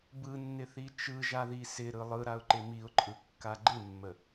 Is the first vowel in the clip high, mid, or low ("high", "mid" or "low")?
high